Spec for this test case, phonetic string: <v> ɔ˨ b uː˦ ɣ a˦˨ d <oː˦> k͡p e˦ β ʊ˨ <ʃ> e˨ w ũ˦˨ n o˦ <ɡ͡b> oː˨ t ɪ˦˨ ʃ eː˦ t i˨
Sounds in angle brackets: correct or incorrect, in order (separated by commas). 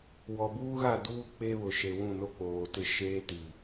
incorrect, incorrect, correct, incorrect